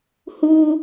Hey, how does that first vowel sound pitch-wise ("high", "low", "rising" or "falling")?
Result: high